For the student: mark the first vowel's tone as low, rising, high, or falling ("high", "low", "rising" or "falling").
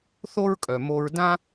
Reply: high